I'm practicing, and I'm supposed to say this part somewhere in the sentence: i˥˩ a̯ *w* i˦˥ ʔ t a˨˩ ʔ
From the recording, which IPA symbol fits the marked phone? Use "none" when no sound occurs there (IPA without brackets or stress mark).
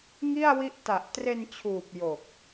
w